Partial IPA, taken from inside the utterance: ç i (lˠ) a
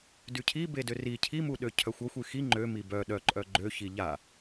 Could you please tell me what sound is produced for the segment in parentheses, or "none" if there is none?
ʎ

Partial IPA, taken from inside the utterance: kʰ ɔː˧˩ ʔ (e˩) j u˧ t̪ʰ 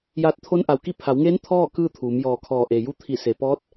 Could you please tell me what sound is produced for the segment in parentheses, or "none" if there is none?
e˩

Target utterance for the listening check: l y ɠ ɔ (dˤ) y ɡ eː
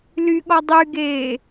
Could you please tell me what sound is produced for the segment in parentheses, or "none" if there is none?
dˤ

